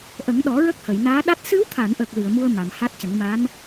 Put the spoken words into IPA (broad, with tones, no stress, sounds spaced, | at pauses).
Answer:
ʔ ə˨˩˦ ŋ ɗ ɔ˨˩˦ ɹ ə˦˥ k̚ h ə˨˩˨ j n aː˧˥ ɗ a˦˥ t̚ s ɨ˧˥ w t̪ʰ a˨˩˨ n ʔ ə˨˩ k̚ l ɨ˨˩˨ ə̯ m u˧ ə̯ m a˨˩˨ m h a˦˥ t̚ c ə˨˩˦ ŋ m a˧˥ n